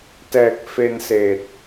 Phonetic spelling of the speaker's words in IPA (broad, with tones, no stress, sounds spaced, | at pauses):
t ɛː˨˩ k̚ f e˧ n s eː˨˩ t̚